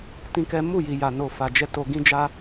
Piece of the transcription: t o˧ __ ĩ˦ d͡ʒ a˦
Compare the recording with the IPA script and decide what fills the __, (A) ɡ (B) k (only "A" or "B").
A